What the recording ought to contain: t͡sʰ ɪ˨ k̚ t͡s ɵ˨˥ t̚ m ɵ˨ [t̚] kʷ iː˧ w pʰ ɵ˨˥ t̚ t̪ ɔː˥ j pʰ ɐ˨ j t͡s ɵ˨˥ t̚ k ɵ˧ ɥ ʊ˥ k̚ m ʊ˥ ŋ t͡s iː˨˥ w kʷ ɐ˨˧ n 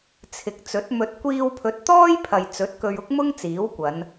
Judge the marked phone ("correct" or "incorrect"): correct